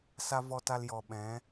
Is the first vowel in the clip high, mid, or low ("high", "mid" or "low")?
low